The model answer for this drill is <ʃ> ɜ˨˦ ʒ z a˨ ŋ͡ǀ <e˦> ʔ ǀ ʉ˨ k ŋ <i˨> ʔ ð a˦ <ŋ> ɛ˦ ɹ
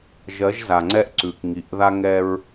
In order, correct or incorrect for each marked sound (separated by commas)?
incorrect, incorrect, correct, correct